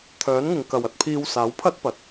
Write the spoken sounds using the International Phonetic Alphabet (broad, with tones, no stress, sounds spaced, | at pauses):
t̪ʰ œː˨˥ n ŋ ɪ˨ ŋ k ɐ˨ w ɐ˧ t̚ pʰ iː˧ w s aː˨˥ w pʰ ɐ˥ t̚ p ɐ˨˥ t̚